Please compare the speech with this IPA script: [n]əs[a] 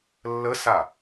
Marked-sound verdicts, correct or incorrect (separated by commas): incorrect, correct